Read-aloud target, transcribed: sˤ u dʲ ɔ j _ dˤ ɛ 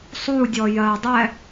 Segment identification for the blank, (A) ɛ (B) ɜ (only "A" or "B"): B